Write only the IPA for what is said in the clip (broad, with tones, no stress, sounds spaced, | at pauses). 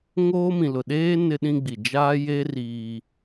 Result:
ŋ oː˦ m ĩ˨ l ʊ˨ ɗ eː˦ n ɪ˦ ɗ ĩ˦ ɡ͡b i˨ d͡ʒ aː˦ j e˦ r iː˦